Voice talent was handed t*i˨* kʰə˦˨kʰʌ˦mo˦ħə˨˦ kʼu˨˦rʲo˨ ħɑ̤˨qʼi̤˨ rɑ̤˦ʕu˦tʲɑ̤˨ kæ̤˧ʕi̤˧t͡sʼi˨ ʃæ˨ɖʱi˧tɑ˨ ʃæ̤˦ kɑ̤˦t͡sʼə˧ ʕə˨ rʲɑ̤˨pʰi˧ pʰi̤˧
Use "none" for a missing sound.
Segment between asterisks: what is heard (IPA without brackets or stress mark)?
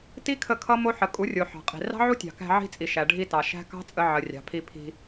i˦